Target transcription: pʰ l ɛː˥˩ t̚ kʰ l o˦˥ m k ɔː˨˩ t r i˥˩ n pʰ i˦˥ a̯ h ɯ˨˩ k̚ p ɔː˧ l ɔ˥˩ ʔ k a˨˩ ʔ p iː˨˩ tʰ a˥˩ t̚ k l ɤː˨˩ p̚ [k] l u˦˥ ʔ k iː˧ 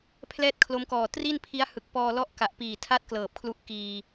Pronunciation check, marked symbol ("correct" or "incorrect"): incorrect